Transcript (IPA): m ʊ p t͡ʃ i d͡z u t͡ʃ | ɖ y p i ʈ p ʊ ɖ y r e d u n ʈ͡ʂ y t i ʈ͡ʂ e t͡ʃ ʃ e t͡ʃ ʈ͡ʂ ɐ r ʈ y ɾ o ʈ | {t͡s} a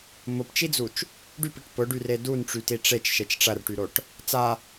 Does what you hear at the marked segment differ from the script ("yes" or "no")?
no